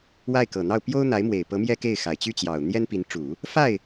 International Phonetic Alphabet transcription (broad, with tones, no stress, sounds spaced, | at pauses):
w a˥˩ ɪ̯ k ɤ˨˩ n̪ ɑ˥˩ ʊ̯ p j o˥ ʊ̯ n̪ a˧˥ ɪ̯ m w e˨˩ ɪ̯ p ɤ˧˥ m j ɛ˥ k e˥˩ ɪ̯ x a˨˩ ɪ̯ t͡ɕ y˥˩ t͡ɕ j ɑ˨˩ ʊ̯ n̪ j ɛ˥ n p i˧˥ n ʈ͡ʂ u˨˩˦ | f a˥˩ ɪ̯